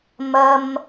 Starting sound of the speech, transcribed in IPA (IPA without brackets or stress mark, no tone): m